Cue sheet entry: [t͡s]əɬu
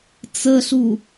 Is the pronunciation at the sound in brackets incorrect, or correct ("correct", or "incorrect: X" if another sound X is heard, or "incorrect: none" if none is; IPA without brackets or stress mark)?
correct